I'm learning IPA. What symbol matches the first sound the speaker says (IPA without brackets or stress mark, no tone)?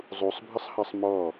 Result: zˤ